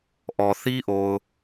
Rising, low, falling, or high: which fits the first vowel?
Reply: low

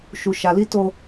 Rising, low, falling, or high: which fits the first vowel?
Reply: low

